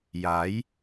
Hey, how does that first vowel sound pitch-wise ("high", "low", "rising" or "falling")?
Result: rising